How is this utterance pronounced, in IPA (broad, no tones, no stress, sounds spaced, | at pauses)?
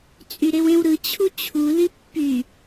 t͡sʼ y ɾ e w ẽ w ɾ ɯ t͡ɕʰ u t͡ɕʰ u l i pː y